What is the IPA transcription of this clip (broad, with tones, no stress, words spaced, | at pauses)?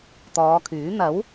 t̪ɔː˨˧kʰyː˨˥ n̪ɐ˨˥w